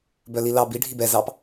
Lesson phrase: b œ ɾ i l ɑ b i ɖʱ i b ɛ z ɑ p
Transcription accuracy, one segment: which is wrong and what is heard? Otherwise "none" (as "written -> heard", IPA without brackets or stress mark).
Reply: ɾ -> l